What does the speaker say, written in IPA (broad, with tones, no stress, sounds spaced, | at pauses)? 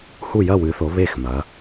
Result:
h u˥˨ j ɐ˥˨ w ɨ˨˦ θ o˨˦ β e˥˨ x m ɐ˨˦